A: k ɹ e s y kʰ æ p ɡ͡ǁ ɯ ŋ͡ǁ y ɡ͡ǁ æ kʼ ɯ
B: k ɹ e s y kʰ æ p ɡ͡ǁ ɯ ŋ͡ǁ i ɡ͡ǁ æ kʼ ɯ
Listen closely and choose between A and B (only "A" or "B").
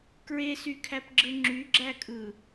A